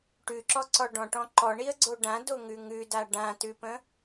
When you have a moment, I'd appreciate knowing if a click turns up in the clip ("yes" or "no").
yes